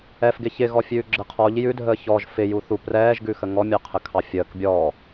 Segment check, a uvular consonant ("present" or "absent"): present